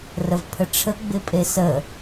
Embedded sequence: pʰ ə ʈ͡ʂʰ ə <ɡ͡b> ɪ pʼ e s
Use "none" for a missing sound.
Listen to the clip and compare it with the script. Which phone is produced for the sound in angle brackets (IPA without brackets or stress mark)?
ɡ͡b